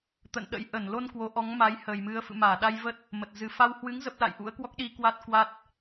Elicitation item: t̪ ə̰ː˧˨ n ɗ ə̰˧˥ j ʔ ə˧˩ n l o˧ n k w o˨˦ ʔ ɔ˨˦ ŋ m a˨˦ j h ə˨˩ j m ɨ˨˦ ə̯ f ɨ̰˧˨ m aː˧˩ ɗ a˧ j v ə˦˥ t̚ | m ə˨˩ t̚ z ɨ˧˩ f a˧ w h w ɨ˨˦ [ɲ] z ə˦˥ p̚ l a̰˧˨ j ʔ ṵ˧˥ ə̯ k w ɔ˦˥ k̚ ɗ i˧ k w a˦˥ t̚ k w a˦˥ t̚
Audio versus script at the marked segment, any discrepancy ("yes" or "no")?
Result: yes